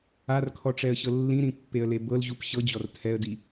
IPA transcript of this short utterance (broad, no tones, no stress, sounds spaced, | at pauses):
a r kʰ ɔ ʈ͡ʂ ɛ ə̯ ɕ ɤ lː ĩ ɾ ĩ pː e ə̯ l e b ɤ l ʑ u p ɕ ɤ d͡ʑ ɔ r tʰ ɛ ə̯ d i